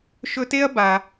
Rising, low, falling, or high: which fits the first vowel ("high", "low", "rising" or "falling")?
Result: high